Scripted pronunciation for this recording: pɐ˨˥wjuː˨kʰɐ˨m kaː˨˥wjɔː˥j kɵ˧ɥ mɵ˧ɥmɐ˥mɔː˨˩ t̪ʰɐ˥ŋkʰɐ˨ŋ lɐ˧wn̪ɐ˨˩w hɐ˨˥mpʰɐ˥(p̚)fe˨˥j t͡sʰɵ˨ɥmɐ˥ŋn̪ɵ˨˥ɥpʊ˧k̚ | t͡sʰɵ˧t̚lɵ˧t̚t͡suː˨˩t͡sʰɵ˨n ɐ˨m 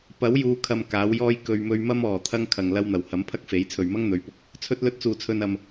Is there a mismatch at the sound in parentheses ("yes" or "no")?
yes